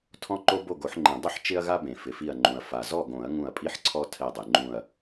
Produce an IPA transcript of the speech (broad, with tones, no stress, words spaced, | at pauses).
tʰɔ̃˦ǃo˦ bo˥˨ɡo˨˩˦ħŋ͡ǃẽ˨˩˦ dˤʊ˥˨ħ t͡ʃɪ˦ɐ̯ɣa˦bẽ˩ fɪ˩fi˧˩ɐ̯ŋ͡ǃũ˩ɐ̯ fa˩zɔ˥˨ɡõ˨˩˦ɐ̯ ŋũ˧˩ɐ̯pʼi˦ħǀʰɔ˦ tʰɛ˧˩dˤe˩ŋ͡ǃũ˧˩ɐ̯